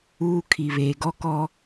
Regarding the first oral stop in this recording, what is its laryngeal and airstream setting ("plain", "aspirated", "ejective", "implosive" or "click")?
aspirated